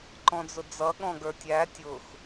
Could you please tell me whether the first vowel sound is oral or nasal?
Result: nasal